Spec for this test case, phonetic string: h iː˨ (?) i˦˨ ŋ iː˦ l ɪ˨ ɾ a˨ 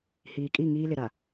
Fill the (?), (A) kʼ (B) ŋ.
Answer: A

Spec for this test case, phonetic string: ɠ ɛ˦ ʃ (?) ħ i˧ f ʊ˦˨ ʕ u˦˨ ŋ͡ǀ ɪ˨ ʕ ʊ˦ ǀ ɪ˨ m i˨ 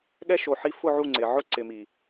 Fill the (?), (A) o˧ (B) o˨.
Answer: B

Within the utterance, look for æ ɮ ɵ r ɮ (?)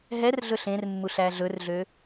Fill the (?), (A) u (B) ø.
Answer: B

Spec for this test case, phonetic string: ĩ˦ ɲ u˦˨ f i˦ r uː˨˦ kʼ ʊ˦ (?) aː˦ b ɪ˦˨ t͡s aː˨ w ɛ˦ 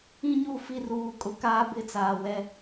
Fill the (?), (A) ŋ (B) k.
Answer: B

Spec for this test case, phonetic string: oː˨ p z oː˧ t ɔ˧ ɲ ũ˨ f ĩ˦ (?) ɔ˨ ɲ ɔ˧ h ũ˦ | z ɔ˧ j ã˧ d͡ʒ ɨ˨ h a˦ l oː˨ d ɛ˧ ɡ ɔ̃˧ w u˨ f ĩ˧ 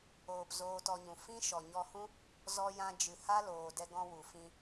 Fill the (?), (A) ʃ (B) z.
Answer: A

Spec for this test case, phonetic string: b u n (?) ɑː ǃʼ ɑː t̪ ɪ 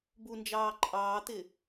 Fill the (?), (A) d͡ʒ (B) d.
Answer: A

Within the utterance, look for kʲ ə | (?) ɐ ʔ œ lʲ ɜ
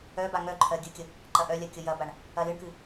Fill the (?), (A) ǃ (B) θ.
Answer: A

